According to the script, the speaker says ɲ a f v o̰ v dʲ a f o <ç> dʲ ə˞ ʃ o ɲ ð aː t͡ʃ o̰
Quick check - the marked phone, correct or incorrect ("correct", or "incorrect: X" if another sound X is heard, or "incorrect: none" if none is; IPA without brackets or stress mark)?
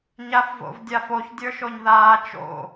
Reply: correct